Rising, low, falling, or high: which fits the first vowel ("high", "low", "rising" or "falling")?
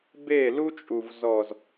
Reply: falling